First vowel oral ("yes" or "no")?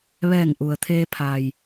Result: yes